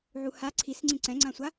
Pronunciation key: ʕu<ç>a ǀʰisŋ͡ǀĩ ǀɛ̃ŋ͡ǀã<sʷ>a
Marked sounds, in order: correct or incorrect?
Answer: incorrect, correct

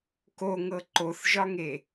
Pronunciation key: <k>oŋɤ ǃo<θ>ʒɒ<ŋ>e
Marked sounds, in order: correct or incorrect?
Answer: correct, correct, correct

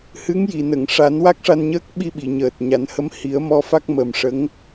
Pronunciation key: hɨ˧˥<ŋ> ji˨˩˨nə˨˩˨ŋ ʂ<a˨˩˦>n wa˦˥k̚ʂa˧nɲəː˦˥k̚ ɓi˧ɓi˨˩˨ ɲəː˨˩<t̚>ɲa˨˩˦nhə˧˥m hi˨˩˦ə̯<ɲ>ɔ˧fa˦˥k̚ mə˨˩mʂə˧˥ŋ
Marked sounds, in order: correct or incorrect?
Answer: correct, correct, correct, incorrect

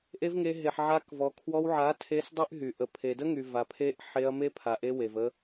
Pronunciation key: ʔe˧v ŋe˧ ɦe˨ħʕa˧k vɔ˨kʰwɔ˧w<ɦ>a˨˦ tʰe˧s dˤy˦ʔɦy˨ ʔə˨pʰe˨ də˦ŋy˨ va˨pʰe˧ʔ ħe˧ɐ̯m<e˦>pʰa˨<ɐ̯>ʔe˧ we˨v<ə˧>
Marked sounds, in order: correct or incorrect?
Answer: incorrect, correct, incorrect, correct

